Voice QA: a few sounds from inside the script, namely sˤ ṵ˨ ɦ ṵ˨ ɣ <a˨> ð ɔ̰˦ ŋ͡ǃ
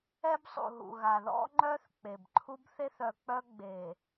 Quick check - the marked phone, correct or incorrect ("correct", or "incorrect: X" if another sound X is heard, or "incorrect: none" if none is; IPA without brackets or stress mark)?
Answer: correct